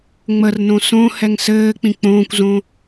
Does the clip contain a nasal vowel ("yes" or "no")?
yes